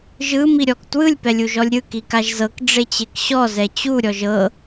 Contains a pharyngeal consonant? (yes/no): no